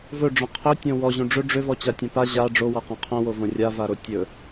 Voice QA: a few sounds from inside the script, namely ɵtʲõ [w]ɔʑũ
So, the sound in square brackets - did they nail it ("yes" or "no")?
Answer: yes